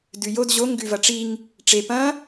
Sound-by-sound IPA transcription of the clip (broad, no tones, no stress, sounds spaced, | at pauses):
d ʉ j o d ʑ o ŋ ɡ ʉ v ɐ ʈ͡ʂ i ŋ | ʈ͡ʂ e p ɐ̃